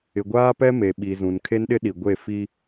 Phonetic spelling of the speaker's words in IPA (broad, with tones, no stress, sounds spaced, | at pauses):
ɪ˨ ɡʷ aː˦ p ɛ˦ m e˨ ɓ i˨ z ũ˨ n kʰ e˦ n ɗ ɪ˦ ɗ i˨ ɡʷ e˦˨ f i˦